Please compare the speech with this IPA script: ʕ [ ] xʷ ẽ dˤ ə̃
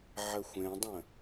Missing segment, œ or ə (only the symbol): ə